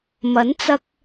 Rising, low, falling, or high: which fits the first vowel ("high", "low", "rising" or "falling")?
rising